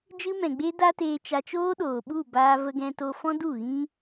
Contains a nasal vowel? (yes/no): yes